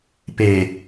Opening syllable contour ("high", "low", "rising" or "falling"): low